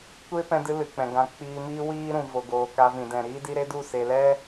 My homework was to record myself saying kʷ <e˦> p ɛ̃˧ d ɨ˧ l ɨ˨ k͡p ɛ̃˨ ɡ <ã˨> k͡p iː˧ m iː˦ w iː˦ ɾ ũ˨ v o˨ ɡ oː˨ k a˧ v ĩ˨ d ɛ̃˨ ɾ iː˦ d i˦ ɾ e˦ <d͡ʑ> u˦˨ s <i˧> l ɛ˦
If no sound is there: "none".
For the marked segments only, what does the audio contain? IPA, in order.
e˦, ã˧, d, e˧

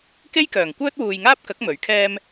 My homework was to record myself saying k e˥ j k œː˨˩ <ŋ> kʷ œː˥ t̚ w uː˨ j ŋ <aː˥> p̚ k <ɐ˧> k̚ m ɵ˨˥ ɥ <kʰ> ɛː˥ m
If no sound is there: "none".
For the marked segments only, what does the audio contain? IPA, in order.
ŋ, aː˥, ɐ˨˥, kʰ

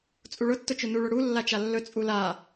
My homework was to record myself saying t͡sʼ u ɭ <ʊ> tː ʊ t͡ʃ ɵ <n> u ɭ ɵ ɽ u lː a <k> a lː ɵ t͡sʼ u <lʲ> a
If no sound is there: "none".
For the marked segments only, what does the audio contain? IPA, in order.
ʊ, n, t͡ʃ, l

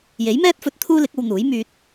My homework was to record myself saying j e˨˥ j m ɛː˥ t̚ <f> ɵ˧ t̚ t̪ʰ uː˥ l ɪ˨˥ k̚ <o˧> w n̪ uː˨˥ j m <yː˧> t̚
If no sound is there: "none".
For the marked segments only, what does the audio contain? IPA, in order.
f, o˧, yː˧

